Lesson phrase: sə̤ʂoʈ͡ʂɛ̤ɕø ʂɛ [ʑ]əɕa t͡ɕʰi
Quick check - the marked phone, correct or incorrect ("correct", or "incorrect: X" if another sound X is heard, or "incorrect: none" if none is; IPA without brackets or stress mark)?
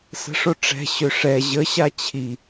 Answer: correct